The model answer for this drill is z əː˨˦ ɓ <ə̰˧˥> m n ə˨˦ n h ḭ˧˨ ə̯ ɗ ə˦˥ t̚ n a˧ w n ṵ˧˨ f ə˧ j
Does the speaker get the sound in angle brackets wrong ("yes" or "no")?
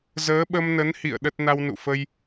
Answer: yes